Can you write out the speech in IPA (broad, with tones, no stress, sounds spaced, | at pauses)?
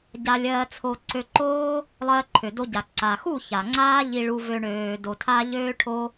ɟ a˧ lʲ ɜː˧ t͡sʰ o˧ ǀ ø˧ ǃ oː˦ | lˠ ɜː˧ ǃʰ ø˨ d o˧ ɟ a˨ ǀ a˨ x u˦˨ ç a˨ ŋ͡ǀ aː˦ ʎ i˧ ɭ u˧ v ø˧ ɳ øː˧ d o˧ tʰ a˦ ʎ øː˦ ʈʰ o˦